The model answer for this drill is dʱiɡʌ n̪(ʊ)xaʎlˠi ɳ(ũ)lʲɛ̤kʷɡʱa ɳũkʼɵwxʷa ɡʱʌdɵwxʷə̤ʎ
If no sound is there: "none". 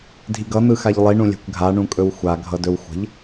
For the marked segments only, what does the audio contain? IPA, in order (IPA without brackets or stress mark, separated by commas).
ɯ, ũ